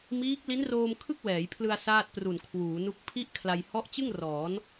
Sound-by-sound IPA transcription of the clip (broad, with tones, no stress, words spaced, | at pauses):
miː˦˥k̚li˦˥nroː˧m kʰɯ˥˩k̚wɛː˩˦jpʰlɯ˧a̯ saː˥˩t̚pru˨˩nkʰwuː˩˦nu˦˥k̚ pʰi˥˩ʔ kʰla˧j hɔ˦˥ʔt͡ɕɯ˥˩ŋ rɔː˩˦n